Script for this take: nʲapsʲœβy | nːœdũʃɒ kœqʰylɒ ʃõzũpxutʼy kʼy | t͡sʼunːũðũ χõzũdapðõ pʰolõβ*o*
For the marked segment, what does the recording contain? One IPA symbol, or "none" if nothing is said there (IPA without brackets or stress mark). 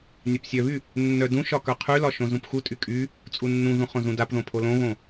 õ